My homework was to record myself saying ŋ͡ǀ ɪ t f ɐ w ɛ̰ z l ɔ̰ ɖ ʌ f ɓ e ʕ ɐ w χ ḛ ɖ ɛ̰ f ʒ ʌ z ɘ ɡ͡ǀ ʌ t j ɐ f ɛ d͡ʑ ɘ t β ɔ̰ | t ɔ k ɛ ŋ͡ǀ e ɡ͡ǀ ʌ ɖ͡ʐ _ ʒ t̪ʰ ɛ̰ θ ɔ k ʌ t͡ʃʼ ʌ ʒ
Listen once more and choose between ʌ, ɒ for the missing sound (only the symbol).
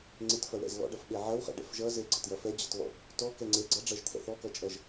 ʌ